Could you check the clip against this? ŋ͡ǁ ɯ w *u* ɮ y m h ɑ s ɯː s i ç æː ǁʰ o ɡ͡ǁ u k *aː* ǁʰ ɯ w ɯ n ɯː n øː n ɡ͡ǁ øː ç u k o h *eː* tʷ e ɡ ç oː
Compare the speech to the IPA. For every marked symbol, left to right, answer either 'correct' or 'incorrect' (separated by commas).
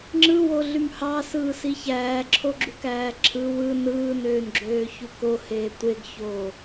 incorrect, incorrect, correct